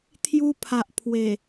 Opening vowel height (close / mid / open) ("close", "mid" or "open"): close